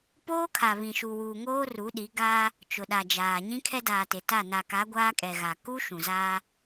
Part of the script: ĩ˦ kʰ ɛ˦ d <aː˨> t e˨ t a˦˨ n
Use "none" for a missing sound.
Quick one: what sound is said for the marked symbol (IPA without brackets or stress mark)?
aː˨